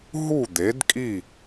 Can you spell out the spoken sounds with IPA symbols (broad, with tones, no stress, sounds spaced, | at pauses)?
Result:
ɦ u˥˩ d̪ e˩˥ d kʼ i˥˩